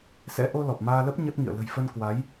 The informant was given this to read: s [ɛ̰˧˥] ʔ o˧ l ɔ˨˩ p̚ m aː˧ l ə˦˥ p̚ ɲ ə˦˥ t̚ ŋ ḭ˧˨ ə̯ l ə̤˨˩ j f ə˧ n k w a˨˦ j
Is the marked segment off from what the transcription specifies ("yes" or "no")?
no